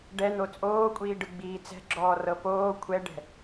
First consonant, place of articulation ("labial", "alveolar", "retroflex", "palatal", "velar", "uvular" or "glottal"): retroflex